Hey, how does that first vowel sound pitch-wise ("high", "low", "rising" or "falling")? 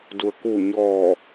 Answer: low